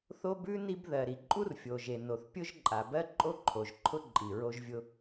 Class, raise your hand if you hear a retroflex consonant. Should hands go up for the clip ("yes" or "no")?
no